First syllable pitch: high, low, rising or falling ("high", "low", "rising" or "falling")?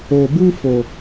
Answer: low